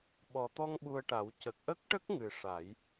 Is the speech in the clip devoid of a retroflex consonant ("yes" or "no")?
no